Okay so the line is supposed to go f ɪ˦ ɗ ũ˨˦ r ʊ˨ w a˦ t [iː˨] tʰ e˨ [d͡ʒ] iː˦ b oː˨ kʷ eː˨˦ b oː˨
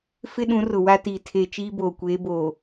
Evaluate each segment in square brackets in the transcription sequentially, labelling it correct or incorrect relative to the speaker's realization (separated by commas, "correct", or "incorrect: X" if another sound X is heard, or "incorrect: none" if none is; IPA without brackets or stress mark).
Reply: correct, incorrect: t͡ʃ